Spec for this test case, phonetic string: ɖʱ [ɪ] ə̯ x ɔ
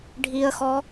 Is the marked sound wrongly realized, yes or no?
yes